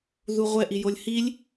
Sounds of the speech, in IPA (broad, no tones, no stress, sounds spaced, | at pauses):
ð u ʁʷ ɛ ʔ i j o lʲ h i lʲ